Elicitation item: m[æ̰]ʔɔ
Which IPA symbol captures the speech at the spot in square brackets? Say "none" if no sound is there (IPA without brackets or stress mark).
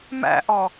æ̰